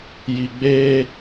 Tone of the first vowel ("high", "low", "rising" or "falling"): low